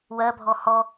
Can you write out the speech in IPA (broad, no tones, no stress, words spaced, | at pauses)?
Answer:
wɜbʱɔ hɔ